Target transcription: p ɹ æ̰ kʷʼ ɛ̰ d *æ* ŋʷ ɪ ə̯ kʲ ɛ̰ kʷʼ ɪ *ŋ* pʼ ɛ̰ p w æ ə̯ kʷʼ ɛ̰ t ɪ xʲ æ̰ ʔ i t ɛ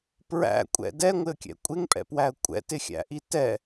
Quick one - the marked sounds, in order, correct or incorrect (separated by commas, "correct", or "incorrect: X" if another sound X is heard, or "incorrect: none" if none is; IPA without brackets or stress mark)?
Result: incorrect: ɛ, correct